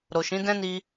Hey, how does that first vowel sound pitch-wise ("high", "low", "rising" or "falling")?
low